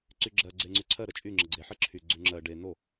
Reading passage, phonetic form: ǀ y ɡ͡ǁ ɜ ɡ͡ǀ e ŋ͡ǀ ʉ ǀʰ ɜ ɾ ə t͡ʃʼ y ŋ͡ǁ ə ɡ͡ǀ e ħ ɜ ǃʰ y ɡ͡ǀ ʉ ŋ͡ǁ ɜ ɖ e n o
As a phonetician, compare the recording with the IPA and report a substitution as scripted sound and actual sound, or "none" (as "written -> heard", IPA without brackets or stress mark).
ǃʰ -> ǁʰ